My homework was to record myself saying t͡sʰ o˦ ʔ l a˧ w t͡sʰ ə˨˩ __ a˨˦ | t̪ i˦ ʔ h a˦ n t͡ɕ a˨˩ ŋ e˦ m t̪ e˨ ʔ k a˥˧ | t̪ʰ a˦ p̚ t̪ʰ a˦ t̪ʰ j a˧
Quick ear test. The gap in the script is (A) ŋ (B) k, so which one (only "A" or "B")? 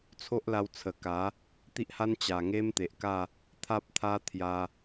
B